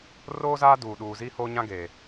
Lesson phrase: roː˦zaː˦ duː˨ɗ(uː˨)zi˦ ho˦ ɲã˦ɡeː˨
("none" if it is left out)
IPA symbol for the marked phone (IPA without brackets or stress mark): uː˨